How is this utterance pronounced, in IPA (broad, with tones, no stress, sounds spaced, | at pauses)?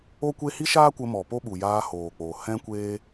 o˦ kʷ e˦ h i˦ ʃ aː˦ kʷ ə˧ m ɔ˨ p o˦ ɓ u˨ j aː˧ h oː˨ k͡p oː˨ h ɛ̃˦ kʷ eː˦